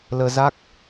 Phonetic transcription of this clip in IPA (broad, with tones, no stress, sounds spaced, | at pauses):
l əː˧ z a˦˥ k̚